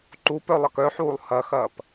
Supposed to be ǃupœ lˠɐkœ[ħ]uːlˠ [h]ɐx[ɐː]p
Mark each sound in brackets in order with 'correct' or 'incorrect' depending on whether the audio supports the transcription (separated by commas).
correct, correct, correct